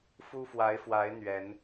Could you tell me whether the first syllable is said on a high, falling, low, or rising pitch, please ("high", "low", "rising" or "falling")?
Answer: high